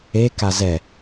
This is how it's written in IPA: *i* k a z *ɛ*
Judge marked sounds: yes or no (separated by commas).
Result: no, yes